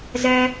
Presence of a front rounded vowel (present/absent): present